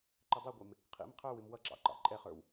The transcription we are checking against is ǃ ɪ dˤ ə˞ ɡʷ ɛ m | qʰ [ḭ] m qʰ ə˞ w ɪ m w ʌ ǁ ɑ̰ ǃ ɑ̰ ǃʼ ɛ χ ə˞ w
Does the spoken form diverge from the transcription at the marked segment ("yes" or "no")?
no